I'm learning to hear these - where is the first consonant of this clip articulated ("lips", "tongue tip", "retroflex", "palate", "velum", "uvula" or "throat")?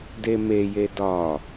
tongue tip